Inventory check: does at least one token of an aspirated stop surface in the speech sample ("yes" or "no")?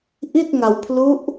yes